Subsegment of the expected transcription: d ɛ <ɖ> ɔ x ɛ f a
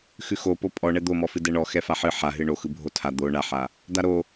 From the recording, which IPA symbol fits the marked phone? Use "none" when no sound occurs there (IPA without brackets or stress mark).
ɳ